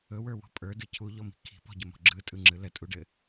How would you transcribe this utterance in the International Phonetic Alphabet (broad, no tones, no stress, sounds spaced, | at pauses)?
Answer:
ɵ w ə˞ w ɔ̤ pʼ ə˞ d ɯ cʰ u ʎ ɔ m i̤ kʰ i̤ p ɔ̤ ɟ ə m ɔ̤ ɡ͡ǁ ɯ tʼ ɯ ŋ͡ǁ ɯ l ə tʼ u ɖ ɘ